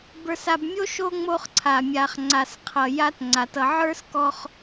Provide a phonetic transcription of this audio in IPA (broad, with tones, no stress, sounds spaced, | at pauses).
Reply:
b ə˞˨ s a˨ b mʲ o˥ ʃ o˦ ŋ͡m o˦ χ ǀʰ a˩ mʲ a˨ χ ŋ͡ǀ a˨ s qʰ ʌ˨ j a˦ t ŋ͡ǀ a˩ t ʌ˨ ʕ ə˞˥ s k ɔ˦ χ